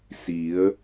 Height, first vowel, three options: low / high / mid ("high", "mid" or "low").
high